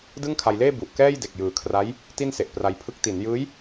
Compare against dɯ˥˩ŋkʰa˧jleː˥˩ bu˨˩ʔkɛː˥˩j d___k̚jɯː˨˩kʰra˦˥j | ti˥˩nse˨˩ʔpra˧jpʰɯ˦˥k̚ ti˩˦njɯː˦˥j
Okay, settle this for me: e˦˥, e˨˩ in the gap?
e˨˩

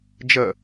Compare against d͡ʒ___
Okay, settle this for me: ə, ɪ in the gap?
ə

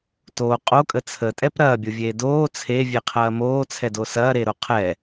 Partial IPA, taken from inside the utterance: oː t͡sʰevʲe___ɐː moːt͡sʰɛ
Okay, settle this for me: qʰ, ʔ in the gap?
qʰ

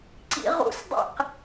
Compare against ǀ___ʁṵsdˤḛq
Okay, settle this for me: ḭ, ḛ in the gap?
ḭ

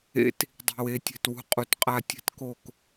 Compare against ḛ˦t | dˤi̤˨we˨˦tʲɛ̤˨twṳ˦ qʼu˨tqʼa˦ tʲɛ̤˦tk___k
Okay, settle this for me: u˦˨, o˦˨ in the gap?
o˦˨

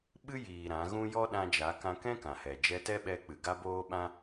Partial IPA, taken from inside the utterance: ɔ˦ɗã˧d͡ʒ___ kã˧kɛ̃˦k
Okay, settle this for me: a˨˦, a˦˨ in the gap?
a˨˦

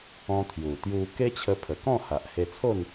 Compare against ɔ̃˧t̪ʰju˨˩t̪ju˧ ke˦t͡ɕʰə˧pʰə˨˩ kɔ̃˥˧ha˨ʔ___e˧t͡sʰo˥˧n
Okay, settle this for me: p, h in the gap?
h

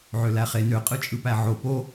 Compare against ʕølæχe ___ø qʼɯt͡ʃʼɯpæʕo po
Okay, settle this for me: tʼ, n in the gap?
n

